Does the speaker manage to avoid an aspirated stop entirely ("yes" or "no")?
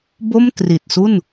yes